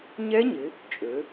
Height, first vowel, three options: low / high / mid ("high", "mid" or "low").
mid